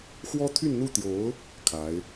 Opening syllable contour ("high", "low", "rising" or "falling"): high